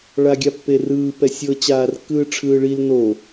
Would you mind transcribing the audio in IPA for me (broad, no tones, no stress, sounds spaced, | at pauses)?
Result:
ɭ a ɡʲ a pː e r ɯː p ɛ sʲ ɤ t͡ɕ aː r kː ɯː ʈ͡ʂʰ ɯː ɭ i l n o